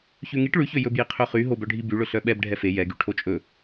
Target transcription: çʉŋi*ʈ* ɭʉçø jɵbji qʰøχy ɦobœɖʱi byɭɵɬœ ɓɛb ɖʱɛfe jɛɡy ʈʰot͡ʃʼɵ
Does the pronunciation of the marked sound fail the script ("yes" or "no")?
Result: no